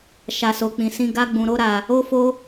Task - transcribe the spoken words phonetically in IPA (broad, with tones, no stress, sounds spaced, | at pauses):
ʃ a˧ s o˧ k͡p ĩ˧ s ĩ˦ ɡ a˦ ɡ͡b ũ˧ ɾ o˦ ɾ a˧ | o˦ f o˦